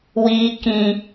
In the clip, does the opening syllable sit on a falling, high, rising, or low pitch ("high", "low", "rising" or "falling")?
high